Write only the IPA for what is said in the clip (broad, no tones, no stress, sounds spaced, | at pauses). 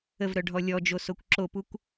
ə v ɾ œ ɖʱ ɔ lʲ ɔ d͡ʒ o s o kʷ ǁ o p u kʷ